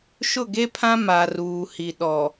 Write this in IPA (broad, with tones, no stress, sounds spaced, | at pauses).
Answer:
ʃ ʊ˦˨ ɡ e˦ pʰ ã˦ m a˨ r uː˨ h i˨ ɗ ɔ˨